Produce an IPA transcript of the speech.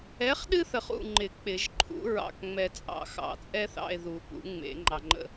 ɛ˨˥ χ ɗ ɨ˦ θ ə˨ χ ṵ˦˨ ŋ͡ǃ ɪ˨˩˦ k͡p ɪ˨˩˦ ʒ ǃʰ ṵ˨˥ ɹ ɑ̰˨ k ŋ͡m ɛ˨ t͡sʼ ɑ̰˨˩˦ x ɑ̰˨˩˦ t͡sʼ ɛ˦ θ ɑ̰˦˨ e̯ ð u˨˩˦ p ṵ˨˩˦ ŋ͡m ḛ˨˩˦ ŋ͡ǃ ɑ˨ ŋ͡ǃ ə̰˦˨

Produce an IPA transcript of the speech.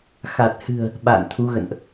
x a˨˩ t̚ h ɨ̤˨˩ ə̯ | ɓ a̰ː˧˨ n t̪ʰ u˨˦ ɣ ə̰˧˨ n ʔ

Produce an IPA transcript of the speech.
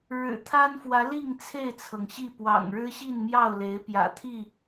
ɻ ɻ̩˨˩ t̪ʰ a˦ n f w ä˨˦ l i˥˨ ŋ t͡sʰ e˥˨ ɪ̯ t͡sʰ ɤ˩ ŋ ɕ i˥˨ p w ɑ̰˨˩ ŋ ɻ ɻ̩˦ ɕ i˥˨ n m j ɑ˥˨ ʊ̯ l e˨˦ ɪ̯ p j ä̰˨˩ t̪ʰ i˥˨

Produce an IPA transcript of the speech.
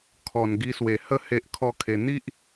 kʰ ɔ˨˩ n ɡ i˧ s w e˨˩ h ə˥˧ h e˦ ʔ kʰ ɔ˦ kʰ e˧ n̪ i˦ ʔ

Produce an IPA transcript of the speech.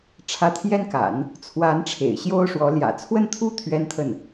ʈ͡ʂʰ ä˧˥ t̪ʰ j ɛ˥ n k a̰˨˩˦ n | t͡sʰ w a˧˥ n ʈ͡ʂʰ ḛ˨˩ ɪ̯ ɕ j o˥ ʊ̯ ʂ w ɔ˧˥ l j ä̰˨˩ t͡sʰ w ə˥˧ n t̪ʰ u˥˩ t̪ʰ ɥ ɛ˥ n t̪ʰ ə˥˩ n

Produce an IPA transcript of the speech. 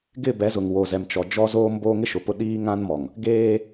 ɡ ɪ˦˨ b ɛ˨˦ z ʊ˨ ŋ w o˨ z ɛ˨ m t͡ʃ ɔ˨ d͡ʒ ɔ˦ z oː˦ m b oː˦ ŋ ɪ˦ ʃ ʊ˨ p ʊ˦ ɗ iː˦ ŋ ã˦ n m ɔ˨ ŋ | ɡ eː˦

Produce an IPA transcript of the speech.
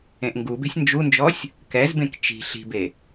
ẽ ʔ ŋ ɡ u b e̤ sʲ n d͡ʒ u n d͡ʒ ɔ sʲ | k ɛ z b ẽ k t͡ʃ i̤ ɬ i̤ b e

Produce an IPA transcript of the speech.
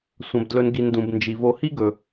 sʷ ɐ̃˩ b d l ɵ˨ n ɡ i˩ n d ũ˩ b n d͡ʒ i˩ v o˨ h i˥ ɡ ɵ˩

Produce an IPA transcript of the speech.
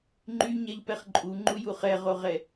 ŋ͡ǃ y ɲ ɛ ʎ p ɛ χ ǃʼ u ŋ͡ǃ u j u χ ɛ ʁ o ʁ ɛ

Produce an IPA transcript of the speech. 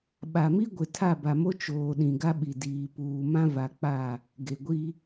ɓ a˨ m i˦ ɡʷ ɪ˨ tʰ a˦˨ b a˨ m o˦ t͡ʃ oː˨ ɗ ĩ˨ ɡ a˦ ɓ i˨ d iː˨ p uː˨ m ã˦ v a˨ k͡p a˦˨ | ɡ e˨ ɡʷ i˦

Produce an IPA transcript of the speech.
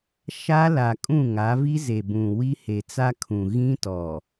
ʃ a˦ l a˨ kʼ ũ˦˨ ŋ a˨˦ v i˦ z e˨ b ũ˨ w i˦ h e˨ t͡s a˦ kʰ ũ˨ ɣ ĩ˦ t ɔ˨

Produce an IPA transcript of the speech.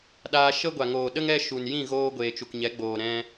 ɗ aː˧ ʃ ə˦ ɡʷ a˨ ŋ oː˨ ɗ ə˦ ŋ ɛ˦ ʃ u˨ n j ĩ˦˨ ɣ oː˧ ɡʷ eː˨ t͡ʃ u˨ k ɲ ɛ˨˦ ɡ͡b oː˨ ɾ ɛ̃˦

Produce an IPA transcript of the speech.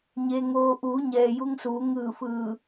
ɲ e˩ ŋ oː˩ ʔ uː˩˧ ɲ ɛː˩ j u˧ ŋ s uː˩˧ ŋ ɯː˧˩ f ɯː˧˩

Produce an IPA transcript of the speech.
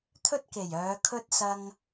t̪ʰ ɵ˥ t̚ k e˨˩ j œː˨˧ kʰ ɵ˥ t̚ s ɐ˧ ŋ

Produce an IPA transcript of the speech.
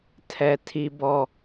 tʰ ɛ˦ tʰ i˦ b ɔ˦˨

